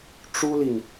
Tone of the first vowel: high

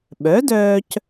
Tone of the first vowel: rising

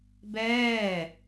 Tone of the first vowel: falling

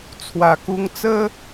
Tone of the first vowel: low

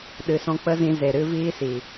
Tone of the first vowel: low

